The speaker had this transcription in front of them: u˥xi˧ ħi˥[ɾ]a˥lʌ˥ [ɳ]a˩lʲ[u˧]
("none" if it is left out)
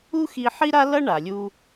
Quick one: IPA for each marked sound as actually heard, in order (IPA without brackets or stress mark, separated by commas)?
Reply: ɾ, ɳ, u˧